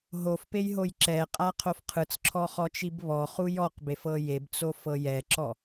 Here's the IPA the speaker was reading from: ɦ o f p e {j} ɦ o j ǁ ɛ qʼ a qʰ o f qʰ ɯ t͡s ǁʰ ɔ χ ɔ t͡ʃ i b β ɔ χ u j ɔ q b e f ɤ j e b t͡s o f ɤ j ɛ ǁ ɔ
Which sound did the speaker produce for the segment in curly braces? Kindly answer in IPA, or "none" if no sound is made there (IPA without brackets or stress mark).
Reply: j